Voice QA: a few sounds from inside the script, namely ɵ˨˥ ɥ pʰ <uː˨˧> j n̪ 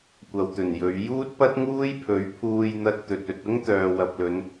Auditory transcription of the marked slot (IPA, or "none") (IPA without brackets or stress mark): uː˧